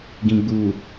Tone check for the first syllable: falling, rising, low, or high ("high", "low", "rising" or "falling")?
low